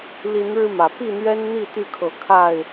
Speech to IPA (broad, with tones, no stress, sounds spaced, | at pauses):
l i˨˦ n ɻ ɻ̩˧ m ä˩ p i˥˨ n̪ ɥ ɛ˦ n n̪ i˥˨ t̪ y˥˨ kʰ ɤ˨˦ kʰ a˥˨ ɪ̯